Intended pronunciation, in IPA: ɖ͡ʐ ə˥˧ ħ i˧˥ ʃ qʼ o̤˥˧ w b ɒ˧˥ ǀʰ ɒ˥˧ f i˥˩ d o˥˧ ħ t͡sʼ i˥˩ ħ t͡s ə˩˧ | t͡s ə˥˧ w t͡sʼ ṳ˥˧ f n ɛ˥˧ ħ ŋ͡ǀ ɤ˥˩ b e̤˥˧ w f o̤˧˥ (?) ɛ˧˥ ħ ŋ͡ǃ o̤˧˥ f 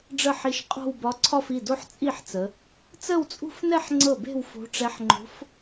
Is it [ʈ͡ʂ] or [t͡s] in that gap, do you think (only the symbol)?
ʈ͡ʂ